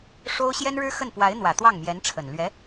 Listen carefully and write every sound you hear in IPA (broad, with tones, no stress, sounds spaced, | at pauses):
ʂ o˥ ʊ̯ ɕ j ɛ˥ n ɻ ɻ̩˥ x ə˥˩ n p w a˧˥ ɪ̯ n̪ w ä˨˩ t̪ w ɑ˥˩ ŋ m j ɛ˧˥ n ʈ͡ʂʰ ə˨˩ n l ɥ ɛ˧˥